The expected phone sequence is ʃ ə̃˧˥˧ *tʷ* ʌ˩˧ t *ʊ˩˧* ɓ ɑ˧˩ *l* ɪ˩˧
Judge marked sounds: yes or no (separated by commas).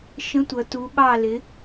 yes, no, yes